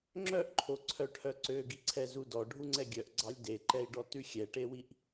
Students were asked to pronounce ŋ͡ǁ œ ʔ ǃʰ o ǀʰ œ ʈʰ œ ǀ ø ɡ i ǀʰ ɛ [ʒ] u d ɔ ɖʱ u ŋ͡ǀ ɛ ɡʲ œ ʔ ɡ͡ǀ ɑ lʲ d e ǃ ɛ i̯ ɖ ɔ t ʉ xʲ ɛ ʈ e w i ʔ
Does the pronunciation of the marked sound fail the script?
yes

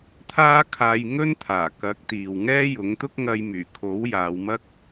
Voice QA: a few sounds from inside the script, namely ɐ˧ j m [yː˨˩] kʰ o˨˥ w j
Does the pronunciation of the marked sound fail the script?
no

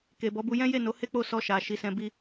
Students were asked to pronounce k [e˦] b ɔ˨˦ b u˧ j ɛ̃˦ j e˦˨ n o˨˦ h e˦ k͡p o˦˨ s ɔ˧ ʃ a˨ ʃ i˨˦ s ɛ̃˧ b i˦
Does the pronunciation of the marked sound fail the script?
yes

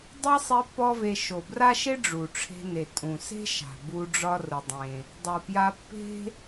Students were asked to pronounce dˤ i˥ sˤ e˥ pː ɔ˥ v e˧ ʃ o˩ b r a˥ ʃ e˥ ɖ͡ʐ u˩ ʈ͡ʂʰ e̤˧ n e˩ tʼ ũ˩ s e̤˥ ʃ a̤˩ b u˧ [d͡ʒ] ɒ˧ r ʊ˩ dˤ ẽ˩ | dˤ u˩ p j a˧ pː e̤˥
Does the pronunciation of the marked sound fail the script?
yes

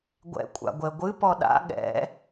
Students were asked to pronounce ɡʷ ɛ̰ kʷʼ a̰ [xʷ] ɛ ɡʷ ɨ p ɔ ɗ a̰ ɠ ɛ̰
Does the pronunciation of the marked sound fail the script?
yes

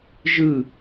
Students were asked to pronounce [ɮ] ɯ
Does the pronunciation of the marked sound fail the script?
yes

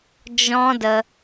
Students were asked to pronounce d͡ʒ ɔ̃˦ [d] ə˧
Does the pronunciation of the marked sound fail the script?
no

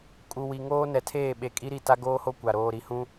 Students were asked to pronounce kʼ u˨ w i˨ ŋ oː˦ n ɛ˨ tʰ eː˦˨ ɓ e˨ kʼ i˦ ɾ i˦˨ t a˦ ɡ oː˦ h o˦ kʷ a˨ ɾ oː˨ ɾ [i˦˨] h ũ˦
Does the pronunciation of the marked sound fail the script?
yes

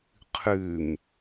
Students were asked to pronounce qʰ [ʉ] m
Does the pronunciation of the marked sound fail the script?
no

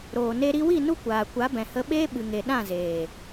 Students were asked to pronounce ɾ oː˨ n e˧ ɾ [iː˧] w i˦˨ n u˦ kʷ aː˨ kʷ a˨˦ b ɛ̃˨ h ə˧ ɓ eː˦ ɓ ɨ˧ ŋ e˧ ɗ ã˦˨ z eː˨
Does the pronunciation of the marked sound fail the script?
yes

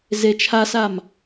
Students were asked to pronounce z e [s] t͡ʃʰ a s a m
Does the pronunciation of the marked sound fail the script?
yes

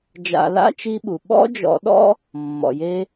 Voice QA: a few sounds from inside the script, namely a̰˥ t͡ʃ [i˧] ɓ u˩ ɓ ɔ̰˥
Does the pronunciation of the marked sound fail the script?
no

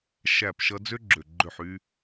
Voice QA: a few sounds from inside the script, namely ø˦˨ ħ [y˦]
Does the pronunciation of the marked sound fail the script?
no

